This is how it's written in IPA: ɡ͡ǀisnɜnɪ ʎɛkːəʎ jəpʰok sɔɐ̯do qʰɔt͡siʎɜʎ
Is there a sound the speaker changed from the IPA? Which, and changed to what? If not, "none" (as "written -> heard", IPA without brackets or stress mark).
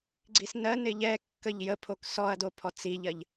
qʰ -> pʰ